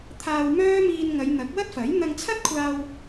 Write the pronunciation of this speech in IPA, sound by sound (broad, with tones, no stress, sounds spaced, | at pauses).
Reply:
t̪ʰ aː˧ w m œː˥ m iː˧ n ŋ ɐ˨˧ j n̪ ɐ˨˥ k̚ w ɐ˥ t̚ f ɐ˨˥ j n̪ ɐ˧ ŋ t͡sʰ ɐ˥ t̚ kʷʰ aː˧ w